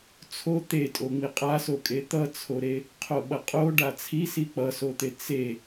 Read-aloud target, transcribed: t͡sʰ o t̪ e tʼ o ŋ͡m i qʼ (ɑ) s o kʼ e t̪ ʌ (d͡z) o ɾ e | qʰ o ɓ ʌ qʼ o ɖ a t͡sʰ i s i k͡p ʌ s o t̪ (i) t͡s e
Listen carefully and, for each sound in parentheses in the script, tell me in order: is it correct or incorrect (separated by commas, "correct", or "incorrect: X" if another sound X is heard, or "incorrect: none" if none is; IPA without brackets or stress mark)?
incorrect: a, incorrect: t͡sʰ, incorrect: e